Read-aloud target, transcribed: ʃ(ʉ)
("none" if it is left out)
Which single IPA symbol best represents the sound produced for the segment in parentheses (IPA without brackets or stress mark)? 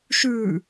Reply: ʉ